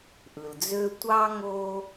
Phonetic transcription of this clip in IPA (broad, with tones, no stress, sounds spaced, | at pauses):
ʔ ɯ˩ l d͡z ø˥ tʷ ɑ˥ ŋ o˦